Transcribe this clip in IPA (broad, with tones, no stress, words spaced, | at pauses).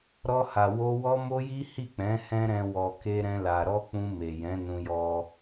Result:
ɾɔ˧ha˨wo˧ wɔ˦mo˦ji˦ hi˦˨k͡pɛ̃˨˦ hɛ̃˦ɾɛ̃˧ wɔ˨ke˧ɾɛ̃˧ la˨ɾɔ˧ k͡pũ˧me˨jɛ̃˨˦ nũ˧jɔ˧